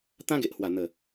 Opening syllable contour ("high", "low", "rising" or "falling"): high